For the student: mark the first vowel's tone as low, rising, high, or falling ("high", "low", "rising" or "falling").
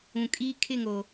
low